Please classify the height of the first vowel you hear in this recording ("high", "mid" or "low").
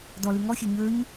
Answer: mid